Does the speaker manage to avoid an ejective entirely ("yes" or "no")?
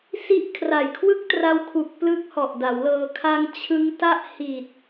yes